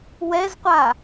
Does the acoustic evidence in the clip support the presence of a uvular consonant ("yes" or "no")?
yes